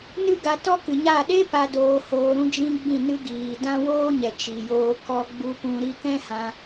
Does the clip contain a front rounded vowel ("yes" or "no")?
no